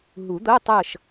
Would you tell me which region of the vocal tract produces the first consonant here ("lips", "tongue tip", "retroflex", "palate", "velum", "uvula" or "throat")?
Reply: throat